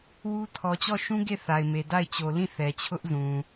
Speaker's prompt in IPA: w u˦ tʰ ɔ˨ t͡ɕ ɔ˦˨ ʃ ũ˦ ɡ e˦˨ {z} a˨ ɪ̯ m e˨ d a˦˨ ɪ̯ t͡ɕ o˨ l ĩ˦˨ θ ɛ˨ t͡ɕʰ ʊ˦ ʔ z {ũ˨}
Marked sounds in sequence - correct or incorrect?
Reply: incorrect, correct

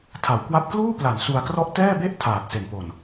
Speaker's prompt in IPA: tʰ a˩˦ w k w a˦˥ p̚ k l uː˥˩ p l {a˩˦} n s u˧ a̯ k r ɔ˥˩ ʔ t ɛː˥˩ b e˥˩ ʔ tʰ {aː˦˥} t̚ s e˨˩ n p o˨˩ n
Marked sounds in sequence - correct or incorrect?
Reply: correct, incorrect

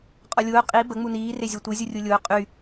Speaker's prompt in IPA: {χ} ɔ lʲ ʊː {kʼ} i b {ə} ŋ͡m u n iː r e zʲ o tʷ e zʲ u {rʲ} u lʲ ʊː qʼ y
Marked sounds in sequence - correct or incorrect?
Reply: incorrect, incorrect, correct, correct

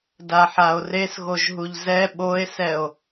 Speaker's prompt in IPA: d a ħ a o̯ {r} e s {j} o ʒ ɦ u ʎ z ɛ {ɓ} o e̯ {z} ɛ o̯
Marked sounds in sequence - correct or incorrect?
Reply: correct, incorrect, correct, incorrect

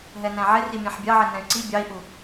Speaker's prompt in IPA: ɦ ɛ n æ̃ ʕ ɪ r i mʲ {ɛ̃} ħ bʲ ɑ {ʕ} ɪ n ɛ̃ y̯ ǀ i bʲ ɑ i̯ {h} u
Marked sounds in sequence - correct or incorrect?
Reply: incorrect, correct, incorrect

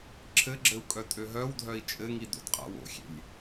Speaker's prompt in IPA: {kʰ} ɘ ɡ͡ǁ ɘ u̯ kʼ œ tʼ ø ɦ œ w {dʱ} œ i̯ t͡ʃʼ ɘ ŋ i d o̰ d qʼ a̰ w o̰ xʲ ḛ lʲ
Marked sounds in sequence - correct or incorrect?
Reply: incorrect, correct

